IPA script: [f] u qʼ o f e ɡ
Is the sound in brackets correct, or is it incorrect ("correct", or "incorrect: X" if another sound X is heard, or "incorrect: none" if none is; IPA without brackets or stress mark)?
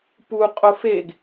incorrect: p